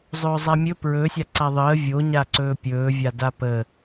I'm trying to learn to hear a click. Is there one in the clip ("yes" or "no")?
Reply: yes